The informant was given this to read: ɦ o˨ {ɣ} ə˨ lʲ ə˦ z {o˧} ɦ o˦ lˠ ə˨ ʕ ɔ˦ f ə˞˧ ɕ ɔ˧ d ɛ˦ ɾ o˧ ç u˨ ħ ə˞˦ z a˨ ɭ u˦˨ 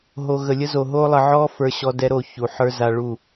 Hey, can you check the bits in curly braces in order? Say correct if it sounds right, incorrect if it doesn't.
correct, incorrect: o˨

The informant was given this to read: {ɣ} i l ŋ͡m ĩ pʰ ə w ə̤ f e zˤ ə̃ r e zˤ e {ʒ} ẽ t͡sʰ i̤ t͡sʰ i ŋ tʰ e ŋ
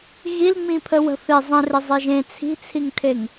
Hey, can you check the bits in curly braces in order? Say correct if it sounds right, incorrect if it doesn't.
correct, correct

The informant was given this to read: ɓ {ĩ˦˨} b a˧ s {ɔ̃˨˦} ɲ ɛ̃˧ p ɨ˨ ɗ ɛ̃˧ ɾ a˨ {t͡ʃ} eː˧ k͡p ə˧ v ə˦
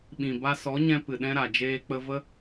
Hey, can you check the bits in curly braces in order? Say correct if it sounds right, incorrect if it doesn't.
incorrect: ĩ˨, incorrect: ɔ˨˦, incorrect: d͡ʒ

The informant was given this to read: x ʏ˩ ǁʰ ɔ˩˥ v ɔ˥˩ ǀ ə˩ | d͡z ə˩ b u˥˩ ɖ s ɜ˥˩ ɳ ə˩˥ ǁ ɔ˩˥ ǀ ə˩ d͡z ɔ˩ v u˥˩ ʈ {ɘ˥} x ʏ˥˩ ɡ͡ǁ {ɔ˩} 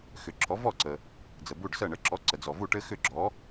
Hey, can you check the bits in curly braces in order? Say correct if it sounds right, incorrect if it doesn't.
correct, incorrect: ɔ˩˥

